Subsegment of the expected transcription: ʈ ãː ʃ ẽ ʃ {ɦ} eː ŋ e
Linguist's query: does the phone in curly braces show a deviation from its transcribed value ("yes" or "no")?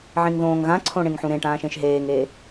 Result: no